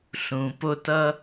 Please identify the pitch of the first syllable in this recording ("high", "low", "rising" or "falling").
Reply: low